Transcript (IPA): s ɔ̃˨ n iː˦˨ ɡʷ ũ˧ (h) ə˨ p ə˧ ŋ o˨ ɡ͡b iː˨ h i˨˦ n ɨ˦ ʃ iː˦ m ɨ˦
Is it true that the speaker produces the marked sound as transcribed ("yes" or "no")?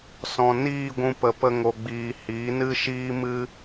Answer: no